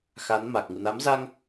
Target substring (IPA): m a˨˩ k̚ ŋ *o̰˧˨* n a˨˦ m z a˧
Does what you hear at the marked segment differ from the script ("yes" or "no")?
yes